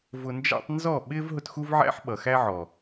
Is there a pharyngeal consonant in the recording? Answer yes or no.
yes